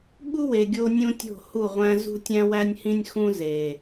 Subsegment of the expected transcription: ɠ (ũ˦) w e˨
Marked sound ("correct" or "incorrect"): incorrect